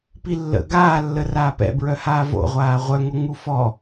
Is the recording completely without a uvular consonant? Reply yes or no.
no